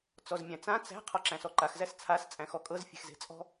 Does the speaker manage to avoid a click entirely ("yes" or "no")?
no